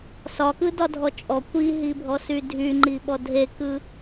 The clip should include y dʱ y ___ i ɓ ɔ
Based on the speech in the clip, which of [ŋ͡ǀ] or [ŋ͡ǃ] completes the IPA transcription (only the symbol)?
ŋ͡ǃ